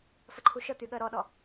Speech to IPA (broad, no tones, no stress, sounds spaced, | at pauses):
f ə ǃʰ u ʃ ə t̪ y ɠ ɜ ɾ ɔ ɗ ɔ